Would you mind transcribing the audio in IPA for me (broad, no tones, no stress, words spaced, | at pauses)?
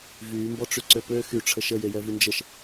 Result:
vyːmbɔʈ͡ʂy ǀøpø xyʈ͡ʂʰə ʃəjejɛ vynd͡ʒəʃ